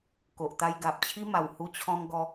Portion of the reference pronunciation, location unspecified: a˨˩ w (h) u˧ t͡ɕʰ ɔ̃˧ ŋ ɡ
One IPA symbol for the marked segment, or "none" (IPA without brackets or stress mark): h